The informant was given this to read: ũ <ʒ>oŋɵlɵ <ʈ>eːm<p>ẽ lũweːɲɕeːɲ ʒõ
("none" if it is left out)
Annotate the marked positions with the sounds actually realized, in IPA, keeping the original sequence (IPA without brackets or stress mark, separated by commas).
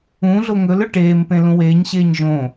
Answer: ɮ, ʈ, p